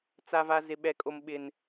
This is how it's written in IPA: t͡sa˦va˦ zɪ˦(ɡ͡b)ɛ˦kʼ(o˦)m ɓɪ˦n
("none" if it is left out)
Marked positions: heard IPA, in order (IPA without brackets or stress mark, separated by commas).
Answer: ɓ, o˦